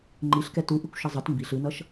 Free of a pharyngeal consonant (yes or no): yes